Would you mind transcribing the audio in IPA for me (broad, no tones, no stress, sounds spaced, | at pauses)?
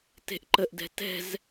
t e̤ ʔ ǃ ə ʔ d ɛ̤ t ɛ̤ z